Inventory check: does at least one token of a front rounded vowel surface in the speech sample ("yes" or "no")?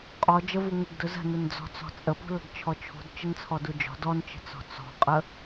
no